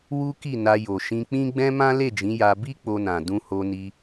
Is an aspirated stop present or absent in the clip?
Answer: absent